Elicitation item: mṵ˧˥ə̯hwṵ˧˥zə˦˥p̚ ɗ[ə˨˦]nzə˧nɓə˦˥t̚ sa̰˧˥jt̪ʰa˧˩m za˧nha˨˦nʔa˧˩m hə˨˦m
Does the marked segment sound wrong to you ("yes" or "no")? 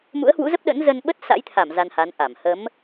yes